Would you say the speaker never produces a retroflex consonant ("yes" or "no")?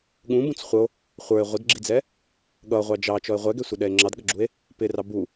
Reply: yes